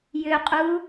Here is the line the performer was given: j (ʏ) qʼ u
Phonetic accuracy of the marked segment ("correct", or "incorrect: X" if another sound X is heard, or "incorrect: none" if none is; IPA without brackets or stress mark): correct